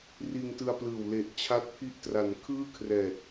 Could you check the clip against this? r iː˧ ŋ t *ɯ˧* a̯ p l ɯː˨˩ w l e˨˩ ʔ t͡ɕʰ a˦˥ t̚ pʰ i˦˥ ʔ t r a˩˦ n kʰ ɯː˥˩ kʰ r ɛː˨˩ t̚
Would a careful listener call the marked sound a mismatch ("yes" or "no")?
no